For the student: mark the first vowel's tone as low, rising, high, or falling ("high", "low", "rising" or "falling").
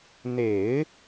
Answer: low